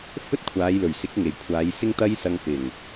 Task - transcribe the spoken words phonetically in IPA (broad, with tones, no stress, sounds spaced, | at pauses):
f ɵ˥ t̚ kʷʰ aː˨˧ j l ɵ˨˩ ɥ s ɪ˨˥ k̚ ŋ e˨˩ j kʷʰ aː˨˧ j s ɪ˥ ŋ t̪ ɐ˥ j s ɐ˧ ŋ f ɪ˨˩ ŋ